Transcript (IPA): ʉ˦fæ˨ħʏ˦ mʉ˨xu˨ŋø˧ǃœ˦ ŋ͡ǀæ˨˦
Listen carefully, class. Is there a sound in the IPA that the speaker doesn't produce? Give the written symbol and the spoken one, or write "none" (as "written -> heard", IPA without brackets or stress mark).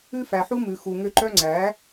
ʏ˦ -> u˦